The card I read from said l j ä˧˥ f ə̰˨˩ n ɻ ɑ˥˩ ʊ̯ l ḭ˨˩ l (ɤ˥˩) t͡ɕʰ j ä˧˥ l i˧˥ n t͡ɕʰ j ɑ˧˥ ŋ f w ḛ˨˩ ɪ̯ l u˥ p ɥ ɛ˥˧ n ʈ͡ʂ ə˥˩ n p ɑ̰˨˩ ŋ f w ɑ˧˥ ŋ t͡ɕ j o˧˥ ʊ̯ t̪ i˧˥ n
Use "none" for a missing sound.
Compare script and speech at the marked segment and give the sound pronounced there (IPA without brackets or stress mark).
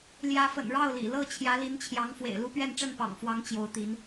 ɤ˥˩